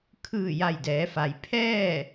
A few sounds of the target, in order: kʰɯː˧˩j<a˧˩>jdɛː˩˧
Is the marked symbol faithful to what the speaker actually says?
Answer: yes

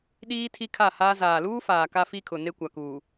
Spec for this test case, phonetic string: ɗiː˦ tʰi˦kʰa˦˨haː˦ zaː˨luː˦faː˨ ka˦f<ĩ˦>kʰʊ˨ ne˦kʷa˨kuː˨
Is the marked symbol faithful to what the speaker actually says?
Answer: no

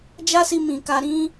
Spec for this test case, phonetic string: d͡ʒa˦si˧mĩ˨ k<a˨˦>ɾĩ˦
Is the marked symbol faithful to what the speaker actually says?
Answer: no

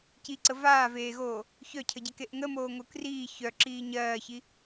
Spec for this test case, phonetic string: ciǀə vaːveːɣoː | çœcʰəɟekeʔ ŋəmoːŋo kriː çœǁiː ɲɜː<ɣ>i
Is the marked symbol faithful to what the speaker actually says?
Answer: no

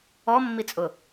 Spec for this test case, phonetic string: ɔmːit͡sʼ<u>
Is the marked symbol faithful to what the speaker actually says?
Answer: no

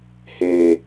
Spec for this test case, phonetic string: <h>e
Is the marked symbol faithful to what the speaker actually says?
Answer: yes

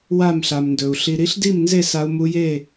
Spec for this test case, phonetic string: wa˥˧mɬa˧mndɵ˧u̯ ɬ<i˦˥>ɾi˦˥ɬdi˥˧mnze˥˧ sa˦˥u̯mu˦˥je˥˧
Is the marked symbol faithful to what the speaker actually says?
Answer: no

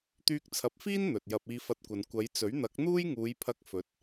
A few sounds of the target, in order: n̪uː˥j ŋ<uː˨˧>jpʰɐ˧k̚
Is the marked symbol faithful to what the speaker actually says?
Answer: yes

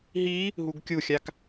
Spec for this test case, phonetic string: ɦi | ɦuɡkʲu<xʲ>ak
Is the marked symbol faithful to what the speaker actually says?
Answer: yes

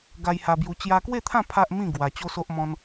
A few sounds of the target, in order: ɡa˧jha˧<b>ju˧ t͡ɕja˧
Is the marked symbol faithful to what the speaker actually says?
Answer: yes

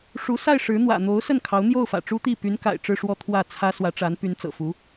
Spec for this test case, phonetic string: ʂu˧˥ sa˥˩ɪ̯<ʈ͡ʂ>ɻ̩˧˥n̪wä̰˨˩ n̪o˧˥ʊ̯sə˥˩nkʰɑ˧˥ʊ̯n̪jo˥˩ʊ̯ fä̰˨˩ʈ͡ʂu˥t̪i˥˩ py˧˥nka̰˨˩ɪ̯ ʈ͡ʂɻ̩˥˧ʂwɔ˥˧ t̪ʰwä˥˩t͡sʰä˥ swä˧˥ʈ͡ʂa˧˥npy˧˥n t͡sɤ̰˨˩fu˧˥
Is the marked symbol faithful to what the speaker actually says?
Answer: no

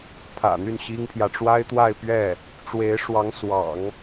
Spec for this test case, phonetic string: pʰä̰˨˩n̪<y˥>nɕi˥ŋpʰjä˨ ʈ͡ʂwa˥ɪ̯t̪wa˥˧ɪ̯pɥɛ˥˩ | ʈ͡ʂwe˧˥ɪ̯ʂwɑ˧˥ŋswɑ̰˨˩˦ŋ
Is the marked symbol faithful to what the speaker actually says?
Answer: no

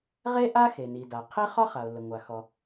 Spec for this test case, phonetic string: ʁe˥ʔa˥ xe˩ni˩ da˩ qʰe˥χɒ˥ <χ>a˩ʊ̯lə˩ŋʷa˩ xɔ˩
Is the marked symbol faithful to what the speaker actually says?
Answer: yes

